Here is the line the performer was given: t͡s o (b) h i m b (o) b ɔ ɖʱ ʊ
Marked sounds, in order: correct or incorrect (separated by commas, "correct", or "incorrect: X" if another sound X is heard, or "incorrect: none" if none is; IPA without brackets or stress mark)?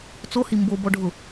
incorrect: none, correct